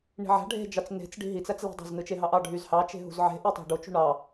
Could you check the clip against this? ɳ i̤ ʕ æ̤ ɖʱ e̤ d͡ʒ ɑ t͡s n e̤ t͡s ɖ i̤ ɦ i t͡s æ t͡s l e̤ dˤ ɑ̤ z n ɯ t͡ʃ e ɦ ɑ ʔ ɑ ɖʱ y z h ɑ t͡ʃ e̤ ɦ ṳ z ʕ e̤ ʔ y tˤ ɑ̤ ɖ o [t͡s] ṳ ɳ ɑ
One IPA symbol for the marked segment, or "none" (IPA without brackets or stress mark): t͡ʃ